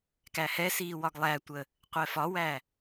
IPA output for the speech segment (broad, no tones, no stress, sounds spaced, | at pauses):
k æ h ɛ s iː w ɒ ɡ lˠ æ tʷ ə | qʷ ɛ f ɒ w æ